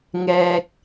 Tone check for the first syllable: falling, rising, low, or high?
low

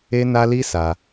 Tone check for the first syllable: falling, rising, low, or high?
high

